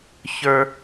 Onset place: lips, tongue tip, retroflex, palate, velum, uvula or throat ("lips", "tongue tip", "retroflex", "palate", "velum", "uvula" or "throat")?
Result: palate